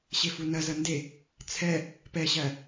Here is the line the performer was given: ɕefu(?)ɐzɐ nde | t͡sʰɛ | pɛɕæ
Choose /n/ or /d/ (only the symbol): n